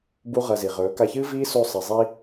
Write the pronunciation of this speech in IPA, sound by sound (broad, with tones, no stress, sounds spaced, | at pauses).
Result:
b u˦ ʁ ɐ˧ z i˨ ʁ ɵː˨˦ k a˧ ç ɨː˦ v iː˦ s o˧ sˤ i˨ zˤ i˦